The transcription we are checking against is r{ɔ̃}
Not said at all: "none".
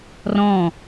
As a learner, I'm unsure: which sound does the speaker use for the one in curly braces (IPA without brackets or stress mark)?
ɔ̃